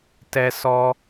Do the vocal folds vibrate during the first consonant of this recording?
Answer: no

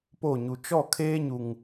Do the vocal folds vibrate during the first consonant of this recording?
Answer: no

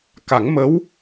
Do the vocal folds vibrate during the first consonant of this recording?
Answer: no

